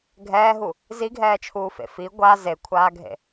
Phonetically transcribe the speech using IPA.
ɡʱɛːɦu | ziɡʱɛːt͡ʃʰuːfḛ fi ɡʷa zekʷʰaːɡʱḛ

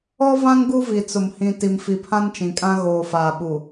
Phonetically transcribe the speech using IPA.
ɔ˦vã˦ŋ ɡu˦vi˨t͡sʊ˨m hĩ˨ ti˨mfi˨pʰã˦n t͡ʃĩ˨kʼã˦ ɣoː˨faː˨ɓu˨

